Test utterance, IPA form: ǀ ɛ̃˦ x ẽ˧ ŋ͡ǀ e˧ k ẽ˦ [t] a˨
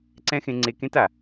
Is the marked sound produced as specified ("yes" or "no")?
yes